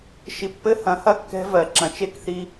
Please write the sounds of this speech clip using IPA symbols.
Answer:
ʃ i˨ pː ɘ˦ h ɐ̃˨˦ h ɐ˦ kː ɛ̤˦ v ɜ˨ ǁ ɐ̃˨ t͡ʃ e˦ k θ i˧

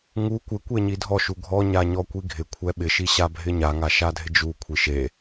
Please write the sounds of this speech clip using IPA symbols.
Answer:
ŋ u kʷ ɪ kʷ e ɲ i dʱ ɔ ʃ u ɡʱ ɔ ɲ a ɲ ɔ kʷ i ɡʱ ɪ kʷʰ ɛ ɓ ɪ ʃ i ɕ a bʱ ɪ ɲ a ŋ a ʃ a dʱ ɪ d͡ʒ u kʷʰ i ʃ e

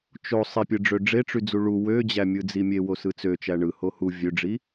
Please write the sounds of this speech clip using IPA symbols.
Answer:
t͡ʃ o sˤ i pʲ ɯ ɖ͡ʐ ø ɖ͡ʐ e ʈ͡ʂ y d͡z u ɭ u w ø d͡ʑ æ mʲ ɯ d͡z i mʲ e w o s ɯ t͡s ø t͡ʃ æ ɳ ɯ h o h u vʲ ø ɖ͡ʐ i

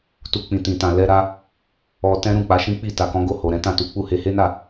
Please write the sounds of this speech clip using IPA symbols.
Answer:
t u˧ k͡p ĩ˨ t ĩ˨ t ã˨ l ɛ˧ ɾ a˧ | ɔ˧ t ɛ̃˦ ɾ ũ˦˨ k͡p a˨˦ ʃ ĩ˦ k͡p i˦˨ t a˨ k ɔ̃˨˦ ɡ o˦˨ h o˨ ɾ ɛ̃˨˦ t ã˦˨ t u˨˦ k͡p u˦˨ h e˧ h e˦ n a˦˨

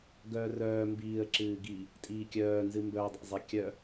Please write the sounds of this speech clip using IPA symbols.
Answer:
ɡ œː r œː m b iː ə̯ ǁ ɨː ɡ i | tʼ iː kʲ œː n z ɨ m b œ dˤ ḭ zˤ i kʲ œ

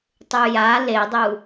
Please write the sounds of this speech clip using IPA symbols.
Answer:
tˤ u j a l e dˤ u

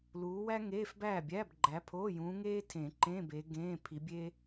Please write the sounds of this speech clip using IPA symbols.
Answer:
l uː˨˦ w æ˥ ŋ eː˧˥˧ f b æː˥˨ bʲ æː˧˥˧ b ɡ͡ǃ æ˨˦ pʰ oː˧˥˧ j ũː˨˦ ŋ eː˥ tʰ ẽ˨˩˦ ǃ ẽ˧˥˧ b e˨˦ ɡ ẽː˧˥˧ pʰ i˨˦ bʲ e˥

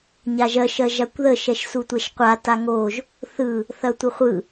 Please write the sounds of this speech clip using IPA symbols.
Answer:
ɲ a ʒ ɜ ʃ ɜ ʒ a kʷ ð ə ʃ ɛ ʃ s u tʷ ɛ ʃ qʷ a t a ŋ o ʒ | θ ɯ | θ ɐ tʷ ə χʷ ɯ

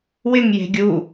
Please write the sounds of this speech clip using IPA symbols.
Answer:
w ɪ ŋ j e̤ ɡʲ u

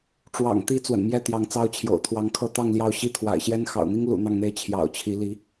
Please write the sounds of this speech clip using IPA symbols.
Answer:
ʈ͡ʂ w ɑ̰˨˩ ŋ t̪ i˧˥ t͡s w ə̰˨˩ n m j ɛ˥˩ t̪ j ɑ˧˥ ŋ t͡s ɑ˥ ʊ̯ t͡ɕʰ j o̰˨˩ ʊ̯ t̪ʰ w ɑ˧˥ ŋ kʰ ɤ˥˧ t̪ ɑ˥˧ ŋ l j ɑ˥˩ ʊ̯ ɕ i˥ t̪ʰ w a̰˨˩ ɪ̯ ɕ j ɛ˥ n x ɑ̰˨˩ ʊ̯ n̪ i˥ ŋ l ṵ˨˩ n̪ ɑ˥˧ ŋ n̪ e˥˩ ɪ̯ t͡ɕʰ j ɑ̰˨˩ ʊ̯ t͡ɕʰ i˧˥ l i˧˥

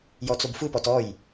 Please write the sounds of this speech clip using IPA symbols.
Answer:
j ɔ t͡s o b f ɯ p ɔ t ɔ j

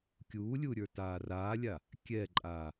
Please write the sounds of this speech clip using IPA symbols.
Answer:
kʲ uː lʲ u ɾʲ ə˞ t aː r aː lʲ a | kʲ ɛ ǃʼ aː

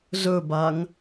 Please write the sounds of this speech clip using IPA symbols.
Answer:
z ɵ b a ŋ

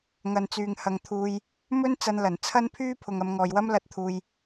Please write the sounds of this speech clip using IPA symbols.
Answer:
ŋ ɐ˨ n t͡s yː˨ ŋ h ɐ˨ ŋ t̪ʰ uː˨ j | m ɵ˥ n t͡s ɐ˧ n l ɐ˨˩ n t͡sʰ ɐ˥ n pʰ yː˥ pʰ ʊ˨ ŋ ɐ˨˧ m ŋ ɔː˨ j w ɐ˥ m l ɐ˧ t̚ t̪ʰ uː˨ j

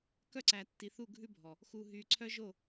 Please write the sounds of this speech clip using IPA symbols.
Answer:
k œ˦ ǀ æ˨ tː i˨ θ u˦˨ ɡʱ ʉ˦ bʱ ɔ˨ | x u˨ ɦ y˨ ǀʰ œ˦ ʒ o˦˨

